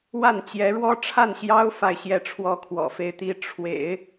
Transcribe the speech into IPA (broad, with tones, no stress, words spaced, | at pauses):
wa˥˩n t͡ɕjɛ˧˥ɻwɔ˥ ʈ͡ʂʰa˥˩nɕjɑ˥ʊ̯ fa˥˧ɪ̯ɕjɛ˥˩ ʈ͡ʂʰwɔ˥kʰwɔ̰˨˩fe˥˧ɪ̯ t̪i˥˩ ʈ͡ʂʰwḛ˨˩˦ɪ̯